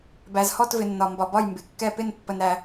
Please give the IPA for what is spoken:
b æ˨ z h ɔ˦˨ t v ɪ˨ nː ɒ˨ m b ɒ˨ b ɒ˦˨ j m b ɪ˨ kː ɛ˦˨ p ɪ˦˨ n pː ə˨ n ɾ æ˨

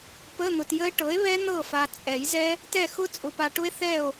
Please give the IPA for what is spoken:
p ə˧˥˧ n̪ ʊ˨ t j ə˦˥ e̯ ʈ ɤ˩˥ e̯ β ɛ˦˥ n̪ ɤ˦˨ f a˨ t͡sʼ ɛ˨˩˦ j z ɛ˦˥ | t ɛ˦˨ x ʊ˦˥ t͡sʼ ʊ˨ p a˨ ʈ ʊ˦˥ e̯ θ ɛ˦˨ o̯

